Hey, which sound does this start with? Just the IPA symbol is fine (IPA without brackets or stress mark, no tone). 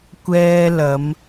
kʷ